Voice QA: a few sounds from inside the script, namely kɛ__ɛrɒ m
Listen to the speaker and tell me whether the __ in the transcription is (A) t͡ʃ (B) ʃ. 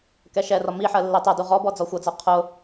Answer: B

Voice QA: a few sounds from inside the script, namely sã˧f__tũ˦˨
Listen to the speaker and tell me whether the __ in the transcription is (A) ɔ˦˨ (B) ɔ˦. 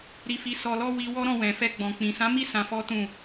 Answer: B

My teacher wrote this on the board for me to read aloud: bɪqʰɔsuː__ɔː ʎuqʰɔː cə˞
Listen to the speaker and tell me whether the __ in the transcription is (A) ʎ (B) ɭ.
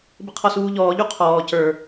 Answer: A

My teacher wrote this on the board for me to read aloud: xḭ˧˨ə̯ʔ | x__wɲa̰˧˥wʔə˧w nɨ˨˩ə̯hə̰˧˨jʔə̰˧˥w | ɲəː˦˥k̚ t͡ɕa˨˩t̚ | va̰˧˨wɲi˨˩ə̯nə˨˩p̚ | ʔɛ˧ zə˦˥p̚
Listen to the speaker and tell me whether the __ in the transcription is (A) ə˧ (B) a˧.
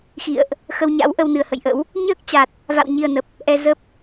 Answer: A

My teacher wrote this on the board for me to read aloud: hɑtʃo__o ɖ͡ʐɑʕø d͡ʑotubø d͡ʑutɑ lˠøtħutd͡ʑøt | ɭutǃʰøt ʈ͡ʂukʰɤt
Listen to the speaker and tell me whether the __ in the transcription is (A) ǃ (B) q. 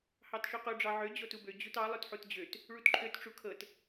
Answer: B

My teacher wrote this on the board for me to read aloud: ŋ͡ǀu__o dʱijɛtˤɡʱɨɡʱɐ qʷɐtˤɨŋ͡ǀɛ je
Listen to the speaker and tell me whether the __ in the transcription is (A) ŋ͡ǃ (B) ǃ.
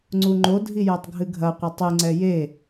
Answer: A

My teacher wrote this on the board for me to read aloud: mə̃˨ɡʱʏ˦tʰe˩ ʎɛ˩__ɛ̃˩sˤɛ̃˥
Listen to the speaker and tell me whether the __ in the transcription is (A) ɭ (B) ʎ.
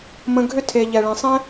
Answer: A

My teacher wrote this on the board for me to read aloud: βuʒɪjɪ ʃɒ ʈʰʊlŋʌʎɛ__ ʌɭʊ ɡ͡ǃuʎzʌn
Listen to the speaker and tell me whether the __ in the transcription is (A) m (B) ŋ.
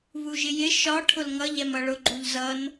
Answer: A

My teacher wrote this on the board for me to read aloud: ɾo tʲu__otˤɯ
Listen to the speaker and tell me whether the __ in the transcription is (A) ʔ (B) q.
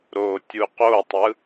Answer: B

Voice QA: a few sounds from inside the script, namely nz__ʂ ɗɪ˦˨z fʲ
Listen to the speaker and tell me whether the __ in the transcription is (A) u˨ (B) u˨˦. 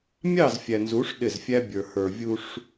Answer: B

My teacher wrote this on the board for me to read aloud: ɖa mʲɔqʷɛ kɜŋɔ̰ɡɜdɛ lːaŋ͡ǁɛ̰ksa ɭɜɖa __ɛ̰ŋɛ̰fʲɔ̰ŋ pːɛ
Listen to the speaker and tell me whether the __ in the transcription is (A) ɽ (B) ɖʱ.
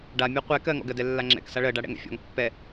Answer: A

